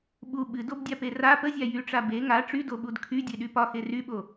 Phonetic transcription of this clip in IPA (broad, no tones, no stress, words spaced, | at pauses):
ɓu ɓɨdobdʲape ra pəzʲa jyʈ͡ʂa be ŋa ʈ͡ʂydoɓud kʰydʲeɗy pɒxe ryɓo